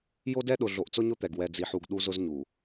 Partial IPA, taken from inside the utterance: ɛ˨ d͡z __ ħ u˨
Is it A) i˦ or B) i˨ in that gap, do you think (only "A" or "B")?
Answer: B